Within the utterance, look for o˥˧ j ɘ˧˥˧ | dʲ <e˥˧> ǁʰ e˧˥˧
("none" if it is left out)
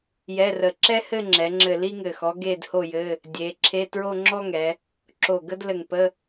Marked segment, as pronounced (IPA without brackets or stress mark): e˩˧